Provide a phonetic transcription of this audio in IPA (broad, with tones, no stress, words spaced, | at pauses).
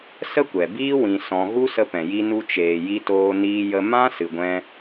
sə˦kʷɛ˨biː˦ wĩ˧ sɔ̃˧ ɣu˦sə˧pɛ̃˨ ji˦nu˦ t͡ʃeː˨ji˧ toː˧niː˧jə˧ mã˦ sɨ˨ɡʷɛ̃˧